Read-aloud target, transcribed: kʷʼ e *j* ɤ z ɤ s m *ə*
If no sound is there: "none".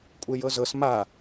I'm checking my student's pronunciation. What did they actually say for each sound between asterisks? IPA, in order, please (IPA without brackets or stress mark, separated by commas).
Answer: j, a